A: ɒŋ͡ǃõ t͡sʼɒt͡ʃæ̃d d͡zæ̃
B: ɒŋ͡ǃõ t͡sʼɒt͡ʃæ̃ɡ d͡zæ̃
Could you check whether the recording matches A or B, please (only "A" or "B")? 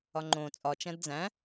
A